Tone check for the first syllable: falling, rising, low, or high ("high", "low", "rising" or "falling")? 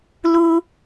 high